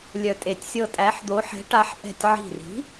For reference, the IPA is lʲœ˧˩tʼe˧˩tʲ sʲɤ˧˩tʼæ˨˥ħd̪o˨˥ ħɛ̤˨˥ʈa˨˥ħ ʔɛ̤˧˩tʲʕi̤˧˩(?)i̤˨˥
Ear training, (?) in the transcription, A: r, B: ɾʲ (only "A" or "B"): A